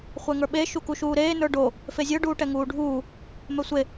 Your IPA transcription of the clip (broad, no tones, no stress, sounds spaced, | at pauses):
χʷ ɛ ŋ ə˞ ɓ e ʃ u k u ʃ uː ɾ eː n ə˞ ɖ o | f e zʲ ə˞ ɖ uː ʈ ɛ ŋ uː ɖʱ uː | m ɛ sʷ e